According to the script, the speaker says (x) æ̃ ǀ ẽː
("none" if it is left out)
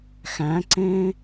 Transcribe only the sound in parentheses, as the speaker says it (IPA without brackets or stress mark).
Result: x